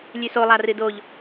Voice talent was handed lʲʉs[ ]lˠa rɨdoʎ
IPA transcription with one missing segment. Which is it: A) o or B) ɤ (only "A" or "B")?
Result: A